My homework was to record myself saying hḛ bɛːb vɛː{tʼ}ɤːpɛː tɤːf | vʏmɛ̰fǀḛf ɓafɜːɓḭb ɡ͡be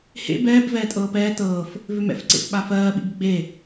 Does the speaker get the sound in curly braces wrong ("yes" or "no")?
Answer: no